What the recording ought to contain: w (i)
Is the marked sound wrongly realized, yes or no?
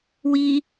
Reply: no